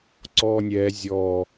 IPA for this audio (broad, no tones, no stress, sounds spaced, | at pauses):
ǀ ɔː nʲ ɛː zʲ ɔ